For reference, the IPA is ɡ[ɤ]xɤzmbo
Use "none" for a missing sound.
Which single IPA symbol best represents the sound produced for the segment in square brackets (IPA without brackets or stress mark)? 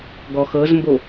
ɔ